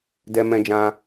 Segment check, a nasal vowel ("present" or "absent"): present